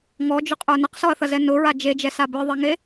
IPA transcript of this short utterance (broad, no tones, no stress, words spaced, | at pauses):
ŋɔd͡ʒʊqʼə˞ nɐqsɔɐ̯θɐzɛ nʊɹa d͡ʒed͡ʒɛsa bə˞ðˤɛŋe